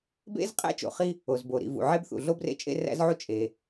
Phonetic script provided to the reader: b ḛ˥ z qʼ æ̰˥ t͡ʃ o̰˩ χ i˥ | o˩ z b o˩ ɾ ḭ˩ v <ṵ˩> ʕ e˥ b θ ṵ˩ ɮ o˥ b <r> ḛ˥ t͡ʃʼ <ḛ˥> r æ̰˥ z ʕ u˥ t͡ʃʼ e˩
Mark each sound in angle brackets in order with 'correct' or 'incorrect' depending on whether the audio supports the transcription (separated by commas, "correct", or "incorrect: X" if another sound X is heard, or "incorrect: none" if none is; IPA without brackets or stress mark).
correct, correct, correct